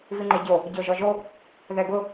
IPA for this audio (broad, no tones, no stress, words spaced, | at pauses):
viŋ͡ǃeɟo | ɟoʒɔʒo | ðɛɡʊ